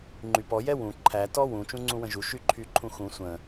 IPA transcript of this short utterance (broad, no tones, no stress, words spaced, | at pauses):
ŋ͡ǃypɔ jɛwũ ǃʰæ tɔwũ t͡ʃũŋ͡ǀũwə̃ʒu ʃyǃʰyǃʰũxũ sʷə̃